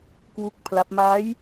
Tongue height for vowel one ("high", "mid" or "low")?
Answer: high